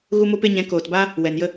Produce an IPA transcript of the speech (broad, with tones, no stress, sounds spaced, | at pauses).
ɣ u˦ m o˦ p e˦ ɲ ɛ̃˨˦ k oː˨ t b aː˦ | w ɛ˨ n j ə˦